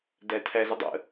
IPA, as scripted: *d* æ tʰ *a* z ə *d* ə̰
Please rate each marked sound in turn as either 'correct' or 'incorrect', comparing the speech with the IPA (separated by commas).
correct, incorrect, incorrect